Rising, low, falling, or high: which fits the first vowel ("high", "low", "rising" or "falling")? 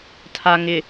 low